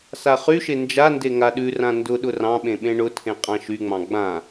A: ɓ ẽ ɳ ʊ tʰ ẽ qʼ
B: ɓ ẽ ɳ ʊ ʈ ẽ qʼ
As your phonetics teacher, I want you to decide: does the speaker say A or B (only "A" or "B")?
A